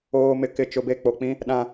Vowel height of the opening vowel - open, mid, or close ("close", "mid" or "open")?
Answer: mid